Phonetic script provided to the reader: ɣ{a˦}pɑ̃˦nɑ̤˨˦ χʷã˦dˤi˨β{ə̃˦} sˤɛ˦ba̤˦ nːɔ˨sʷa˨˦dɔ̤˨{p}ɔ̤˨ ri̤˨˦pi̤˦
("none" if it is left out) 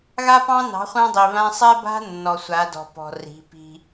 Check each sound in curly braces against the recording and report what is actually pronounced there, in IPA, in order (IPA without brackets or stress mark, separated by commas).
a˦, ã˦, p